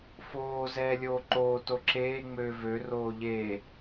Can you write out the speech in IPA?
f oː z ɛː lʲ oː ǃ oː t o ǁ eː ŋ͡m øː v ø r oː ʎ eː

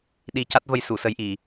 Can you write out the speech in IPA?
ɗ i˧ c a˦˥ t̚ v ə˧ j s u˨˩˨ s ə˧ j ʔ i˨˩˨

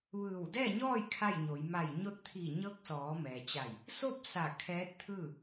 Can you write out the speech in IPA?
ʋ ɯː˧˩ w d ɛː˥˨ ɲ ɔː˥˨ j kʰ a˥˨ j ɲ o˩˧ j m a˧˩ j ɲ o˧ t̚ t̪ʰ iː˧˩ ɲ ɤː˧˥ k̚ s ɔː˩˧ m ɛː˩ t͡ɕ a˧˩ j | s o˥˨ p̚ s a˧˩ kʰ ɛː˧˥ t̚ t̪ʰ ɯː˥˨

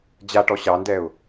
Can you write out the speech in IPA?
d͡ʑ a ʈ ɔ ɕ ɑ n d ɛ ʊ̯

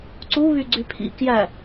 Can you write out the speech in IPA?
ǀ u β y ɡ͡ǀ y pʰ ḭ k j æ

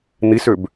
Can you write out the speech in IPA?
n̪ i s ø b

